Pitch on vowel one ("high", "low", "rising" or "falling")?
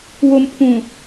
low